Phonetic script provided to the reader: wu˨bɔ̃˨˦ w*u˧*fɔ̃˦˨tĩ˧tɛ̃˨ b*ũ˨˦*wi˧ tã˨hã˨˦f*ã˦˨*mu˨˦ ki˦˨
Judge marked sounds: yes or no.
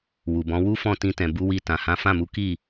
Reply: no, no, yes

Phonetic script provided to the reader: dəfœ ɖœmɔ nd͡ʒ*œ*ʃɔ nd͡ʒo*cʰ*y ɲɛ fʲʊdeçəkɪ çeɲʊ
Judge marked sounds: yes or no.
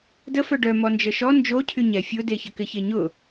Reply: no, yes

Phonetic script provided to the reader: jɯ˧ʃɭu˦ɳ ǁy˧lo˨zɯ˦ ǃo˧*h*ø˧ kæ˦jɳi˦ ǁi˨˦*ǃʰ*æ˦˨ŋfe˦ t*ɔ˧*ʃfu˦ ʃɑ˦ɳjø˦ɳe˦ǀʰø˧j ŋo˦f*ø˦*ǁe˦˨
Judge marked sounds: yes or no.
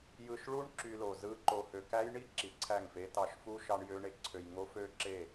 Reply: yes, no, no, yes

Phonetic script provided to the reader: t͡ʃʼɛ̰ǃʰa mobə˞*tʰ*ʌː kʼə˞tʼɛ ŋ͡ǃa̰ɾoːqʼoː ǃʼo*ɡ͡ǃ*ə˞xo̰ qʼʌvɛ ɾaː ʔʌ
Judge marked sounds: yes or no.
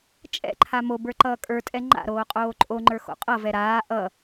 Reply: no, no

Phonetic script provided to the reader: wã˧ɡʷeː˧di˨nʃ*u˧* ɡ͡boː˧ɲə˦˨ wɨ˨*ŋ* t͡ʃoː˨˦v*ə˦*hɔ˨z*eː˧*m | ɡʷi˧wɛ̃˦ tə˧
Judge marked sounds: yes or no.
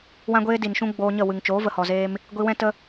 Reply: no, yes, no, yes

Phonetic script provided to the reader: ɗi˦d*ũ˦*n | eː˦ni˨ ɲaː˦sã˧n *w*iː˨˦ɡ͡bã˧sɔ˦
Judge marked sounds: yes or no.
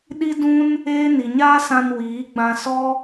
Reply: yes, yes

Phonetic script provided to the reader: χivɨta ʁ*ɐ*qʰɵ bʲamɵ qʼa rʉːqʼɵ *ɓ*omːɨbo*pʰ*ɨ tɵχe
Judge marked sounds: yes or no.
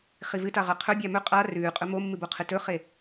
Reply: yes, no, no

